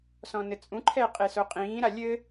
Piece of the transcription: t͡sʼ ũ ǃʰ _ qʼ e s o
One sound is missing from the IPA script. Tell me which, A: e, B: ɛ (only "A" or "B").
B